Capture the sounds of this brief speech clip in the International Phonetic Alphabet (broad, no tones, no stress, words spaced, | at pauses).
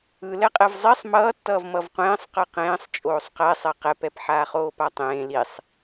ɯ lɛqʼɛvzˤisˤ mʌːtːʌːv mʌvqʷẽːsˤ qɯqẽːsˤ t͡ʃʼoːsˤqɛsˤɛ qɛpɛp ħaːχoːpatˤẽː lisˤ